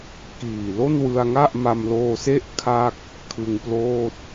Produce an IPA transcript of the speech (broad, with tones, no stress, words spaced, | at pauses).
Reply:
kiː˨˩ lo˥˩nwɯ˧a̯ŋa˥˩ʔ ma˧mloː˧se˥˩ʔ kʰa˥˩k̚ | kʰɯ˧ŋploː˥˩t̚